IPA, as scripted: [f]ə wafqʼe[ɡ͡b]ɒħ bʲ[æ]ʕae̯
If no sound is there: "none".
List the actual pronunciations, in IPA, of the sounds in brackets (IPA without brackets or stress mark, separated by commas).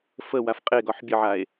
f, ɡ, ə